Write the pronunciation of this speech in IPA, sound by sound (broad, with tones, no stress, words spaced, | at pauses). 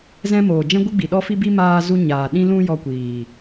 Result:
zɛ̃˦moː˨ d͡ʒɛ̃˦ɡʷɨ˦ɡ͡bi˨ ɗɔ˧fi˧bi˧ maː˧zu˧ɲaː˨ ɗĩ˧lũ˧ jɔ˧kʷiː˨